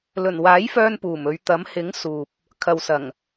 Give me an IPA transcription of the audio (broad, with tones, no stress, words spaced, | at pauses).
lɵ˨˩nwaː˨˥jfœː˧n puː˨˩mɵ˨˧ɥ t̪ɐ˨˥m hɪ˨˥ŋ suː˨p̚ | kʰɐ˨wsɐ˨˩ŋ